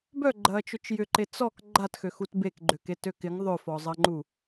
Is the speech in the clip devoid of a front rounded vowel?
no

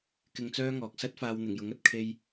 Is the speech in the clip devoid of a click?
yes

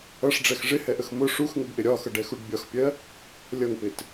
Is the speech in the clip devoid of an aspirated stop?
yes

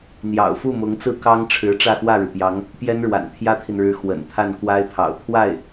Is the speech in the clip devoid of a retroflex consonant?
no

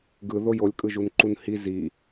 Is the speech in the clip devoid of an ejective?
no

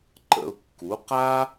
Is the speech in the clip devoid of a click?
no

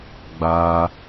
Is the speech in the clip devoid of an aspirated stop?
yes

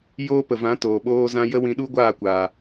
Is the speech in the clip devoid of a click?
yes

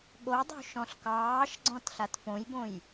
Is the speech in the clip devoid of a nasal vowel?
no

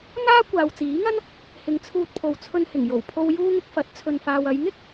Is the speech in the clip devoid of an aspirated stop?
no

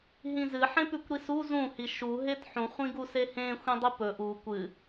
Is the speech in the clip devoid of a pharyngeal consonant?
no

